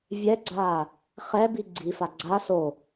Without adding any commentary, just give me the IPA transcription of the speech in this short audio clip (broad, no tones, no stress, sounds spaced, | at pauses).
vʲ ɛ ɡ͡ǀ aː | χ ɛ b i ɡ͡ǀ i f a ɡ͡ǀ a s o